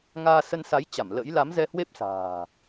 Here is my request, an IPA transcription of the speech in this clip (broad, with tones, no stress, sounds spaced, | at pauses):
ŋ aː˧ s ə˧ n s a˨˦ j t͡ɕ a˧˩ m l ə̰˧˥ j l a˨˦ m z ɛ˧ h w e˦˥ p̚ s a̤ː˨˩